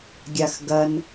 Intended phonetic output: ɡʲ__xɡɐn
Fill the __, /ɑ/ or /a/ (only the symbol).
a